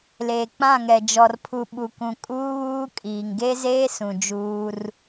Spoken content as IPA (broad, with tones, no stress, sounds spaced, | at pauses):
l eː˨ k͡p ã˦˨ ŋ ɛ˨ d͡ʒ ɔ˨ r pʰ u˨ ɓ u˨ k ũ˨ kʼ uː˦ β uː˦ kʼ iː˨ ŋ ɡ e˦ z eː˦ s ũ˨ d͡ʒ uː˦ r